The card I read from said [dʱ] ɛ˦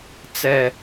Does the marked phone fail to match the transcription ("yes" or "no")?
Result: yes